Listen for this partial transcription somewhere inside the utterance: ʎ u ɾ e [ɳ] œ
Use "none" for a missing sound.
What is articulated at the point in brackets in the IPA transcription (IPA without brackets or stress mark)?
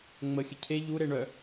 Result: ɳ